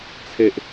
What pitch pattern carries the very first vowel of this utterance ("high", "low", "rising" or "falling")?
high